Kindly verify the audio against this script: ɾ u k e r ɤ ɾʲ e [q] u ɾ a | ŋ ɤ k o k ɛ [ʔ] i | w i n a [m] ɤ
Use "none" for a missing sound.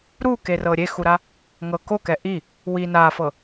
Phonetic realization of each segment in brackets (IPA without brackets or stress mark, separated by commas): x, ʔ, f